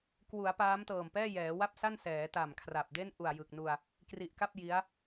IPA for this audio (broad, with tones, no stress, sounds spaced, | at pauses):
k w u˩˦ a̯ p aː˦˥ m t ɤː˨˩ m p ɛː˥˩ j ɛː˩˦ w a˥˩ p̚ s a˥˩ n s ɛː˩˦ t a˨˩ m kʰ r a˨˩ p̚ d e˥˩ n ʔ u˨˩ a̯ j ɯ˨˩ k̚ n u˧ a̯ | k r i˨˩ ʔ k a˥˩ p̚ j i˦˥ a̯